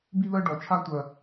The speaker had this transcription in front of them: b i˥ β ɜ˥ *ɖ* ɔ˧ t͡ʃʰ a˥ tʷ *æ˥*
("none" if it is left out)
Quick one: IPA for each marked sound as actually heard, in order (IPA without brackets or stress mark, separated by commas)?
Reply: ɖ, ɜ˥